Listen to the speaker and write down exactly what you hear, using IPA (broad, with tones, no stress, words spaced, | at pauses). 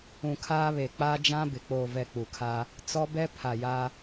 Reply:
ũ˨kʰaː˦βe˨ k͡paː˦d͡ʒã˦ bɪ˨ k͡poː˨vɛ˨ k͡pu˨kʰa˦ | t͡sɔ˦bɛ˦ pʰa˨ja˦